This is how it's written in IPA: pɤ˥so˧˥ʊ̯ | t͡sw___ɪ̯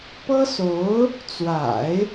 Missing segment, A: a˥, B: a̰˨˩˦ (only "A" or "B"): B